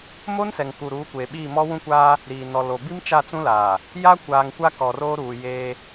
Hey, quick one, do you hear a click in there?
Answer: no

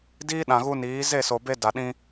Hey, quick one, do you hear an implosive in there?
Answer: yes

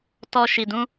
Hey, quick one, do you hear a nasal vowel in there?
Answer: yes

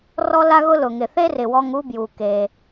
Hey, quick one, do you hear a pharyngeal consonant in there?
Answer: no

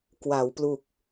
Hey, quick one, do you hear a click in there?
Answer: no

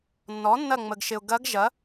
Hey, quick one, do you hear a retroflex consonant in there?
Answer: no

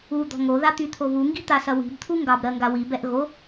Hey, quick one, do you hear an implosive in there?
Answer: no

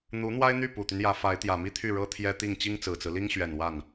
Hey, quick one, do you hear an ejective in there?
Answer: no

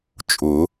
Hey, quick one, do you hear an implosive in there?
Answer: no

